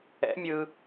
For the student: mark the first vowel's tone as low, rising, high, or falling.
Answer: rising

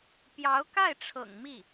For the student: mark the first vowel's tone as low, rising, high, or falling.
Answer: rising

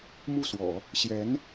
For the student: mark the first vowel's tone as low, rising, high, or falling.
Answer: falling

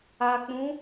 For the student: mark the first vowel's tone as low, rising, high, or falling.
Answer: low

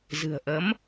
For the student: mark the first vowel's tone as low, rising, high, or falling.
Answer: low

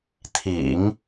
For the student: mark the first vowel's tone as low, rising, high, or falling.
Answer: low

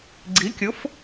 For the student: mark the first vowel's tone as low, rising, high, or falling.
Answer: rising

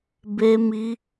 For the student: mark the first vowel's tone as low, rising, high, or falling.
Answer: high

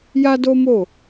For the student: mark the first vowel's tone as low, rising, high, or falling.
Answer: high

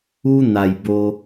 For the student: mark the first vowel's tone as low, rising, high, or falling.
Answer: high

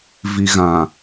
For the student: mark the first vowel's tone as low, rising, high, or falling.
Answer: low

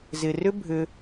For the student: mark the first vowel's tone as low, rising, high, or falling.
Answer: low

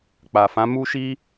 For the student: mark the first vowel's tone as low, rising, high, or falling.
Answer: low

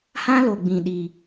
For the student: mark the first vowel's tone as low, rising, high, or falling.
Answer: high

